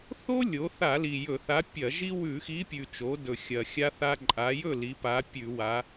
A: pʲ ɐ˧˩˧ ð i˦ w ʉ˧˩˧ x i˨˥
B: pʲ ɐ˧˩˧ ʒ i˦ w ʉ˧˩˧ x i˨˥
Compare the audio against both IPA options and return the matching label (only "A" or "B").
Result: B